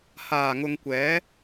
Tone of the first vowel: low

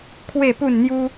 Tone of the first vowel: falling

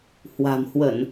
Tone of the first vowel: low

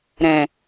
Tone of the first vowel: low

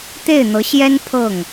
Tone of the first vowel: falling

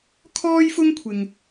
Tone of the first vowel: high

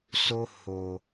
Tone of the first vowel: high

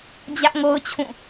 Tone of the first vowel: high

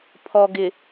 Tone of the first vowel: low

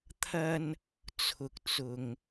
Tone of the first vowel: high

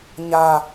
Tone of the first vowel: low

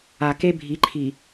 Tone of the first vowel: low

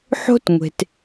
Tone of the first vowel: high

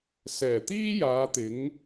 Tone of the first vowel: low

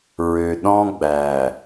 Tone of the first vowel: low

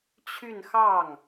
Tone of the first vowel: falling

